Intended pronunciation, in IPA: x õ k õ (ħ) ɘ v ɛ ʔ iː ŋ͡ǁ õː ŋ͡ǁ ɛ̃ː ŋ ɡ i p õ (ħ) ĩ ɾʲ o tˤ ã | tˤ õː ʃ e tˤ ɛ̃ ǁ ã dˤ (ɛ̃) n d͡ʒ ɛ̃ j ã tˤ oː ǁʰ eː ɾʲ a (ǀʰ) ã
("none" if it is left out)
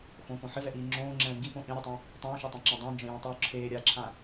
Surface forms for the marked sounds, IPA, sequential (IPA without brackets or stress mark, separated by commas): ħ, ʔ, ɛ̃, ǁʰ